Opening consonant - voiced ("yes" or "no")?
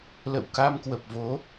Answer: yes